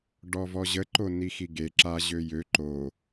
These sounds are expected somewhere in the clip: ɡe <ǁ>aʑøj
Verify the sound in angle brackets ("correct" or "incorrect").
correct